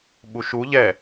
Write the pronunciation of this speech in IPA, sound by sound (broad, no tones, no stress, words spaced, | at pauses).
ɓuʃu ʎɛ